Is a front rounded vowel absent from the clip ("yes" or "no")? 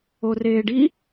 yes